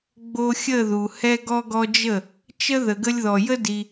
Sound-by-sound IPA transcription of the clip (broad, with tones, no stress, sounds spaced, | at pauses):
ɡ͡b o˧ xʲ ə˦˨ ð u˨ h ɛ˧ ɡ ɔ˧ ɡ ɔ˧ d͡ʒ ə˦˨ | t͡ʃ ə˦ ð ə˨ ɡ ə˧ lʲ ð ɔ˨ j ə˦ d i˧